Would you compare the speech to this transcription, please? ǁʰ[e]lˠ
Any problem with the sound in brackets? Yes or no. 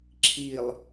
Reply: yes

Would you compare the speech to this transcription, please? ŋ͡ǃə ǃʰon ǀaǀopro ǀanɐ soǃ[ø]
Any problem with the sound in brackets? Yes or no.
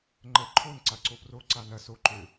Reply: no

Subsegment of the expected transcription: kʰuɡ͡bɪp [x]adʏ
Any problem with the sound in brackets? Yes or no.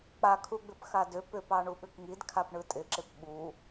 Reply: no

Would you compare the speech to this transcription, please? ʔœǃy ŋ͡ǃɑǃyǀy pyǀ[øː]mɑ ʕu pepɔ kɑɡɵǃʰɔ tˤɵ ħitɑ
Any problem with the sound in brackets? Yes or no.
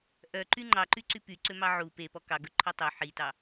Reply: yes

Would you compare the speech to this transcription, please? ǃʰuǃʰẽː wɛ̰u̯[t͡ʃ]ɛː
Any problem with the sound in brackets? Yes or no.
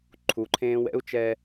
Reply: no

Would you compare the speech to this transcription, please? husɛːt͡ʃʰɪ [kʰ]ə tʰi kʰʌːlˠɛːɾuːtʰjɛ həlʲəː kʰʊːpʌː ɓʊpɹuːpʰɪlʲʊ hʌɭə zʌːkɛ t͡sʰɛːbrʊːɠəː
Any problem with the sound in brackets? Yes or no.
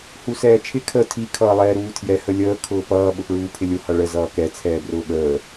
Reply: no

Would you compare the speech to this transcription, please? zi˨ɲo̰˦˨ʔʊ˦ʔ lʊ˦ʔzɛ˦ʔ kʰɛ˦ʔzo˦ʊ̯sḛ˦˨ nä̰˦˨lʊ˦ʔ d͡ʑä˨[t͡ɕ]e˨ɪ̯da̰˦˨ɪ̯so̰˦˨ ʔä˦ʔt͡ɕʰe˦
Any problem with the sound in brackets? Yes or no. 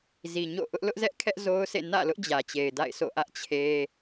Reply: no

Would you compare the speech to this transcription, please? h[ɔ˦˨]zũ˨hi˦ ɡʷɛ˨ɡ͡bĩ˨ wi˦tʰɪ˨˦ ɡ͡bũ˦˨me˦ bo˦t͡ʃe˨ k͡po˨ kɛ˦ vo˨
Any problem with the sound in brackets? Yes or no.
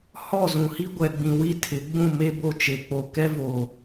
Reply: no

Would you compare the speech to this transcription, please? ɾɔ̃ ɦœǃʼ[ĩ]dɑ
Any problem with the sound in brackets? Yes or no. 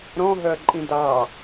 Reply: no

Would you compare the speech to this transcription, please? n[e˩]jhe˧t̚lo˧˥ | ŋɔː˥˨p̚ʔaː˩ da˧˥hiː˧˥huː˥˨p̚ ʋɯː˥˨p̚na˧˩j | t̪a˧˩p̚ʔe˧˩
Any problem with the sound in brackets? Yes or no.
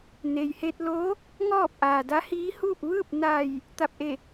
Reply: no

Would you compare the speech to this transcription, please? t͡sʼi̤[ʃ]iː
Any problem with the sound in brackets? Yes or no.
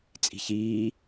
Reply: yes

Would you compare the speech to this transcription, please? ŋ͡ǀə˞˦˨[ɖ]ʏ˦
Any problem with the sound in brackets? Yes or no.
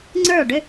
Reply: no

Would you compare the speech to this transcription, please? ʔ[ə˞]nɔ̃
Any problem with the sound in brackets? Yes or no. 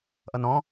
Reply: yes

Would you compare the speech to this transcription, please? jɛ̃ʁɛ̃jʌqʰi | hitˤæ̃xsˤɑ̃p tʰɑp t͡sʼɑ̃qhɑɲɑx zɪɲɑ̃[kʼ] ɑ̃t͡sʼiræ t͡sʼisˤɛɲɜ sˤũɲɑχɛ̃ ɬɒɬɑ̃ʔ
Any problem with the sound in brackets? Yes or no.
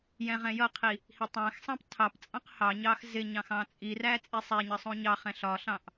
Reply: yes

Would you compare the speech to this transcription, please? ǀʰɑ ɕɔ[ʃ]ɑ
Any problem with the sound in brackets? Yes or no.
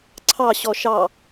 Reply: no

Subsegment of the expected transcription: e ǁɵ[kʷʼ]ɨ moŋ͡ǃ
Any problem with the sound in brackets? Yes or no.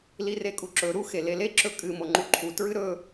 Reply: yes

